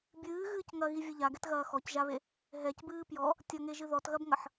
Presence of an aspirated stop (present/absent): absent